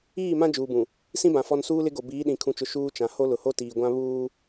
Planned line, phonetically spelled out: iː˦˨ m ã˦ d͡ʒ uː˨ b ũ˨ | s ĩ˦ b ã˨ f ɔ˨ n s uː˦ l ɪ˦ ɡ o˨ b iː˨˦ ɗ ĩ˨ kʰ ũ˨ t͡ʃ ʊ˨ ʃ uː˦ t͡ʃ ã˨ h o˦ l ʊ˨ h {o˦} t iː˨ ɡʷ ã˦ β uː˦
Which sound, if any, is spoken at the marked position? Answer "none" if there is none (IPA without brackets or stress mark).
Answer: o˦